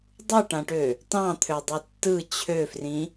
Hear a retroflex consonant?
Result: yes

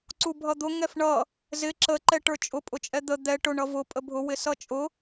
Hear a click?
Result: yes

